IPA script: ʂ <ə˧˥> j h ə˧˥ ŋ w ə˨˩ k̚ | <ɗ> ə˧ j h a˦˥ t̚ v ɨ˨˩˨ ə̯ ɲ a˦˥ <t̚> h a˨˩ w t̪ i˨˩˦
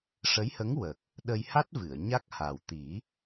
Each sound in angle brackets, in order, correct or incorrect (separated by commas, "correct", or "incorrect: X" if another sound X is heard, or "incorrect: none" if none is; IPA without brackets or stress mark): correct, correct, incorrect: k̚